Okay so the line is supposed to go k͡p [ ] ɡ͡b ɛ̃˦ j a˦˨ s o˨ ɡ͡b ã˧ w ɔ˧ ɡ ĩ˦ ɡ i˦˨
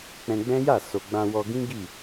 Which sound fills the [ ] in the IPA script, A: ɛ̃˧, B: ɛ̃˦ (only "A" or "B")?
A